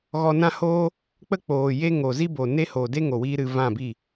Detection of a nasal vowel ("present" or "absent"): present